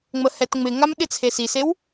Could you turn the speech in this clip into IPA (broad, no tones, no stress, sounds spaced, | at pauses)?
ŋ͡m ə h ɛ t ŋ͡m ɪ ŋ a m ɗ ɪ t͡sʰ e s i s e w